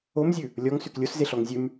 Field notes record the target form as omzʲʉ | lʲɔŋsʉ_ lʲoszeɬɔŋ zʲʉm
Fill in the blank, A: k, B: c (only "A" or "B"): A